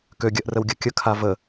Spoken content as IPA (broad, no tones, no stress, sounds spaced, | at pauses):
k ø ɡʲ ɜ ʔ r ə w ɡʲ ɜ kʲ ə kʰ a v ə